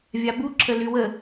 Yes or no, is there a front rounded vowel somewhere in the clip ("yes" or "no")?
yes